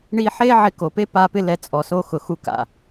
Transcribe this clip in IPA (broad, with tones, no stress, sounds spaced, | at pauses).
ɳ i˧ ħ e˦ ʕ ɪ˧ k o˨ p e˦ p a˧ p ɪ˦ l ɛ˧ t͡sʼ ɔ˨ s o˧ x ʊ˨ x u˧ k a̰˨